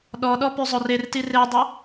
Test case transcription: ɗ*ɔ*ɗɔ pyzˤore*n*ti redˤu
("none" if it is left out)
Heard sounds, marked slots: ɔ, r

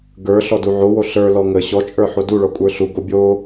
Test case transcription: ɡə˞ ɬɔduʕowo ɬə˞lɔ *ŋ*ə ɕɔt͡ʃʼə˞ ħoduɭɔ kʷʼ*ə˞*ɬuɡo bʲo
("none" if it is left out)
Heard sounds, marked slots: ŋ, ə˞

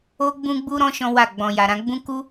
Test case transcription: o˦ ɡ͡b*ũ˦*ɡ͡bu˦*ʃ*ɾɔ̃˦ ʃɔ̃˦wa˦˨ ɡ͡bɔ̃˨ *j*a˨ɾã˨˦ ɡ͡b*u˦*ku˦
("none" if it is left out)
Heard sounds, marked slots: ũ˦, none, j, ũ˦

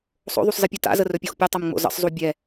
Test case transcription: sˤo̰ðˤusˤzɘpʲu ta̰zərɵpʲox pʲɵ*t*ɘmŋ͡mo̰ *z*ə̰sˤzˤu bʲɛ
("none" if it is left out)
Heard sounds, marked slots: tˤ, z

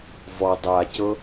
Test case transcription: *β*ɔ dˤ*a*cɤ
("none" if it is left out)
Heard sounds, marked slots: v, a

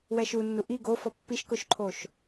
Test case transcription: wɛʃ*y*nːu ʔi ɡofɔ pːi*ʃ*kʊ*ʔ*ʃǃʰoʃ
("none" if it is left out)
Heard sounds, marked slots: u, ʃ, none

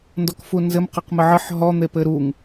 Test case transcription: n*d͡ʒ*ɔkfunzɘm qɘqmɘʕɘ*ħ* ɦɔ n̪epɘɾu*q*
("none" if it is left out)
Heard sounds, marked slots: d, ħ, ŋ

